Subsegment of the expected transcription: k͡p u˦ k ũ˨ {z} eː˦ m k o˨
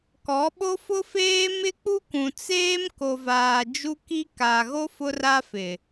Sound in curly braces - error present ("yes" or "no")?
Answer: yes